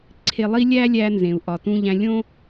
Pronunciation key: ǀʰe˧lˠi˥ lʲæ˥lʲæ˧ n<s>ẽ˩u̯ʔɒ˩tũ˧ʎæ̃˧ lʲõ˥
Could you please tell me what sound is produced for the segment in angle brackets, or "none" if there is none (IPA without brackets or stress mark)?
z